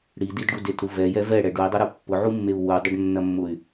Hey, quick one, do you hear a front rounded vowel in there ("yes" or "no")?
yes